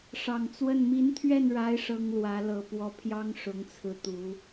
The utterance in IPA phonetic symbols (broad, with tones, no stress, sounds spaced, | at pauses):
ʂ ɑ˨˩ ŋ t͡s w ə˥˩ n m i˧˥ n t̪ʰ ɥ ɛ˥˩ n ɻ a˧˥ ɪ̯ ʂ ɤ˥ ŋ l w ä˧˥ l ɤ˨˩ p w ɔ˧˥ pʰ j ɑ˥ ŋ ʂ ʊ˧˥ ŋ t͡sʰ ɹ̩˧˥ t̪ u˧˥